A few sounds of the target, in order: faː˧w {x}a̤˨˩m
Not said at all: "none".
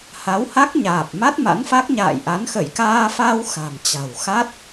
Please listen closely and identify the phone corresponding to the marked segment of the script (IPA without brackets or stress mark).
x